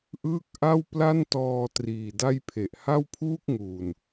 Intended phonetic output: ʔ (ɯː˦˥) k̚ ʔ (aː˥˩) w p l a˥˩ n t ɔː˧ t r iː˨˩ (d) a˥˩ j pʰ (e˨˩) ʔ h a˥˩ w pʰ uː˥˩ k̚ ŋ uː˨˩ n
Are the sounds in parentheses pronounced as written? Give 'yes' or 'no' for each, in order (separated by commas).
yes, no, yes, yes